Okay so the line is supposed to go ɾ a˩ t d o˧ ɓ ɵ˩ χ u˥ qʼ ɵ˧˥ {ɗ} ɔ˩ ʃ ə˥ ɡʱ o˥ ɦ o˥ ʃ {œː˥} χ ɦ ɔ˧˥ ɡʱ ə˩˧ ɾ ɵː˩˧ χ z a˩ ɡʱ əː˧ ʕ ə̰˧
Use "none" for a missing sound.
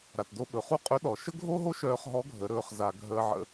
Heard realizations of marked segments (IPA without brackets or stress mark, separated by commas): ɗ, œː˧